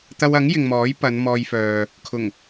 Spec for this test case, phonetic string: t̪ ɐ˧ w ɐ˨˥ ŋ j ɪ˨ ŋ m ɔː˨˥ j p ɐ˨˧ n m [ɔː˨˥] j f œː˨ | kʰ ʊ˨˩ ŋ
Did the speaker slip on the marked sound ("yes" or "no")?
yes